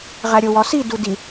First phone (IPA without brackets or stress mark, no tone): ʁ